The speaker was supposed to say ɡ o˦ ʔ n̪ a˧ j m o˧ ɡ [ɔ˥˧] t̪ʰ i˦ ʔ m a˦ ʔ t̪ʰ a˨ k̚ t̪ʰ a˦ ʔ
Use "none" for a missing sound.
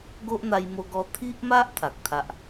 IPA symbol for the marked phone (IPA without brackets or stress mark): ɔ˧